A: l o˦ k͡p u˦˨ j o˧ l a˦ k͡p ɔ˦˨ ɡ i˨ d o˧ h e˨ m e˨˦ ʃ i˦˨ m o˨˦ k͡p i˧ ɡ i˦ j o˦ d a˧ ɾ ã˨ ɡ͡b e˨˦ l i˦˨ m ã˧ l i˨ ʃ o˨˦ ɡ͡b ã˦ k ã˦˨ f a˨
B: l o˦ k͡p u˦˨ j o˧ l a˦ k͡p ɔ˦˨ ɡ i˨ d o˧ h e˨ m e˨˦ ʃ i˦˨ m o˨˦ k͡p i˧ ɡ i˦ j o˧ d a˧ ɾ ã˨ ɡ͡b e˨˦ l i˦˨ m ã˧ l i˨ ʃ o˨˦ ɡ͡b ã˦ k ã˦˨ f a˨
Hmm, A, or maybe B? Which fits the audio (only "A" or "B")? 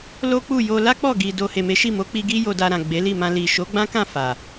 B